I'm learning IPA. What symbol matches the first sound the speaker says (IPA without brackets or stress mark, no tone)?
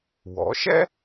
w